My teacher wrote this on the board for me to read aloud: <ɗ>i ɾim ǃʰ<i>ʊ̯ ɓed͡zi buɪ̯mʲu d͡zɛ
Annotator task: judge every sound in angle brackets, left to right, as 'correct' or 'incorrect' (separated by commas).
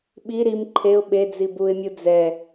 incorrect, incorrect